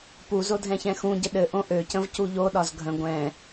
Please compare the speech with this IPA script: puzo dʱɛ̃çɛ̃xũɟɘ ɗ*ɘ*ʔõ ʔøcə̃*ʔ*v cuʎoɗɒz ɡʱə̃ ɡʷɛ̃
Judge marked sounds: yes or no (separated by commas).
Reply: yes, no